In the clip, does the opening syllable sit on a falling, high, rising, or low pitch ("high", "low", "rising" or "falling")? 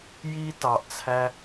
high